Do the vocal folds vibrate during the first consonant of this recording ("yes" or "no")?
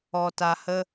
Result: no